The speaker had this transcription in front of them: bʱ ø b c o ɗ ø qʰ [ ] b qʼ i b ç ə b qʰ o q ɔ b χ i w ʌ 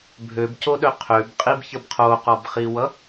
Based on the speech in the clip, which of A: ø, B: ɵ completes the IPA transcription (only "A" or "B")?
A